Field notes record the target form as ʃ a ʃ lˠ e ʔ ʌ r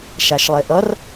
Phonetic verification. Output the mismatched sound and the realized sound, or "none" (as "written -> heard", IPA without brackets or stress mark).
none